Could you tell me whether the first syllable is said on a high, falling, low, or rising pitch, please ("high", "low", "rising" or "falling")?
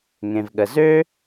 low